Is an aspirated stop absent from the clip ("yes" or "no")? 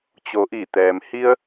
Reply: yes